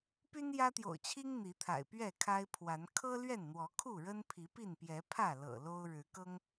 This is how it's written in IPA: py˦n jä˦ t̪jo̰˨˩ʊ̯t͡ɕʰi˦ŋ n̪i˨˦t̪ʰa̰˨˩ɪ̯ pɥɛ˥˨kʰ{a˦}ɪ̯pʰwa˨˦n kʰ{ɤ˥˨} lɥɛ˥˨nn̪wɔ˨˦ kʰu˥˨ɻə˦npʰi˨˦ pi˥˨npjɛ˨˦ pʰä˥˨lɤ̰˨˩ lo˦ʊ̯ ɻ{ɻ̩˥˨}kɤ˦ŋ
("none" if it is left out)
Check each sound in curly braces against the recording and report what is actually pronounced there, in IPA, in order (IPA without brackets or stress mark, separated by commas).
a˦, ɤ˦, ɻ̩˨˦